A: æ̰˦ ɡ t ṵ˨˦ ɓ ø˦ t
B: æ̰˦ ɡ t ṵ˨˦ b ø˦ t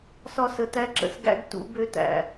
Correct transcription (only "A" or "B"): B